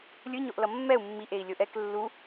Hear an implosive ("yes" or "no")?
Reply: no